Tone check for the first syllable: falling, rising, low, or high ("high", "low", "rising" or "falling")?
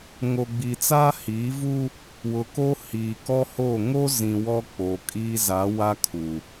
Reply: low